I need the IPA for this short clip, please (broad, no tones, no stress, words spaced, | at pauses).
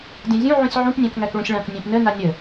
dʲãzʲũ ʕũsʲʕũp nʲæ̃kŋækɭũsʲɭãk nʲæ̃pnə nanʲə